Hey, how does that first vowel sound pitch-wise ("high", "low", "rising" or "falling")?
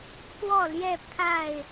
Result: falling